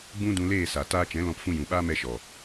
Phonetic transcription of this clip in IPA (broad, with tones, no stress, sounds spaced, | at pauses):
ɡ͡b ũ˦ d ũ˧ l eː˦˨ s a˨ t aː˧ t͡ʃ ɛ̃˨˦ l ɔ̃˧ p f ũ˧ j ũ˨ ɓ aː˦ m ɛ˧ ʃ ɔ˨